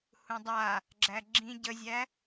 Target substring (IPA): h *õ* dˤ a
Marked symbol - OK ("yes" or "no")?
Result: no